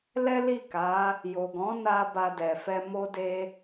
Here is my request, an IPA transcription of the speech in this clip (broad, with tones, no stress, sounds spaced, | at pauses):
l ɛ˦ l i˦˨ k a˨˦ | j o˨ ɡ ɔ̃˨˦ n a˧ b a˧ d ɛ˨ f ɛ˧ m o˦ d e˦